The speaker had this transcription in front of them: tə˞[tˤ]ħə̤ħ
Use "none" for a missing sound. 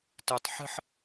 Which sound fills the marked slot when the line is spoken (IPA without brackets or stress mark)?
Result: tˤ